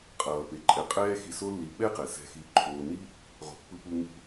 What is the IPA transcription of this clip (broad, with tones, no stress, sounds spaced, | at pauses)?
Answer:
qʼ ʌː˩ p e˩ ǃʼ ɛ˨ qʼ ɛː˥ x i˨ s o˦ lː i˨ ɓ ɛ˥ q ɛ˩ s ɛ̤˨ x i˨ ǃʰ oː˨ n i˦ | ʁ o̤˩ pː ɯ˨ p u˨ ŋ ṳ˨